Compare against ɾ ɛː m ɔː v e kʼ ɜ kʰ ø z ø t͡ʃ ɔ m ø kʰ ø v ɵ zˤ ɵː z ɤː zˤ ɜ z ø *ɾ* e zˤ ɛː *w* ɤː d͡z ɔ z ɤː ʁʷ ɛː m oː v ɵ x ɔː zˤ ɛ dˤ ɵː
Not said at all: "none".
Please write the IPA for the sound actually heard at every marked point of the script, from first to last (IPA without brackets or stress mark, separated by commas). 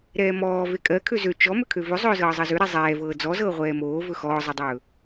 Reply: ɾ, v